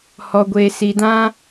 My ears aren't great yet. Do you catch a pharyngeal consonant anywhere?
no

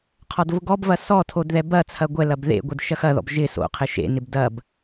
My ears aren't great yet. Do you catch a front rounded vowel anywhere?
no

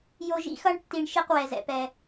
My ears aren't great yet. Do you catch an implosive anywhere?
no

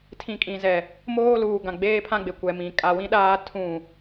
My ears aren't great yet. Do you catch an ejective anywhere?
yes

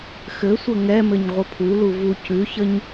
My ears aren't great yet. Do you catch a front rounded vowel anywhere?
no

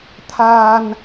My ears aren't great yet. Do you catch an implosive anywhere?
no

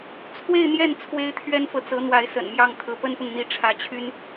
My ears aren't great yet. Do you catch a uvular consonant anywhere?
no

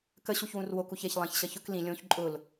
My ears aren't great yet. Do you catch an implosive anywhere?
no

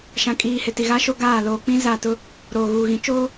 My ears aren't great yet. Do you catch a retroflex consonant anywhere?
no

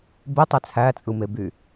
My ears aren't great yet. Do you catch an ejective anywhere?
yes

